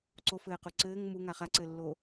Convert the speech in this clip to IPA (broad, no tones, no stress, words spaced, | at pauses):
ǀofɘːqu ǀɘːŋ muŋa χaǀɘːlːo